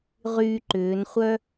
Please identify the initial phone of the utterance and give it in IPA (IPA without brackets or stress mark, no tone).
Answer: ʁ